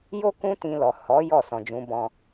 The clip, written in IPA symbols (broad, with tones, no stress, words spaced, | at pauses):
jo˦ kũ˦tĩ˧lɔ˨ hɔ˨˦ jɔ˦˨ sɔ̃˨d͡ʒũ˨˦bɔ̃˧